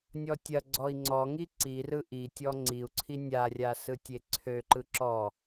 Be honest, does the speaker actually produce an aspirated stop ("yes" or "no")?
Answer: yes